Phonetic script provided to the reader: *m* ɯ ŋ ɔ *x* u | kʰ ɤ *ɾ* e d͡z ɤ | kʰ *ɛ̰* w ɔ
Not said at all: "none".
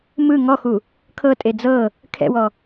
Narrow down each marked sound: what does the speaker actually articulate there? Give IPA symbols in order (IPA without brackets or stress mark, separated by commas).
m, x, tʼ, ɛ̰